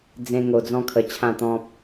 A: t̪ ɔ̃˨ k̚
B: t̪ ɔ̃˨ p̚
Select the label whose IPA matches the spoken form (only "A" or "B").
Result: B